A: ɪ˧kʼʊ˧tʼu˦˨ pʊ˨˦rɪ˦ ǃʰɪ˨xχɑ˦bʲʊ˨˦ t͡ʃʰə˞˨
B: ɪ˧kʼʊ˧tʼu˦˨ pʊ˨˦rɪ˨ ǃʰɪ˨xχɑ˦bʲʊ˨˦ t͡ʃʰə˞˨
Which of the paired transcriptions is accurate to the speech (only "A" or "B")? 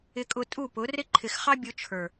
A